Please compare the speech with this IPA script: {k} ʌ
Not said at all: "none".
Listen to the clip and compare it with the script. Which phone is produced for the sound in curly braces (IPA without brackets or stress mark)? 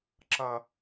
ǁ